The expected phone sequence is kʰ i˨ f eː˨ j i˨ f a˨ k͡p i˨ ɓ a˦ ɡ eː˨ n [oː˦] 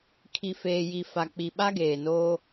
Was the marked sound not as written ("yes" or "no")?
no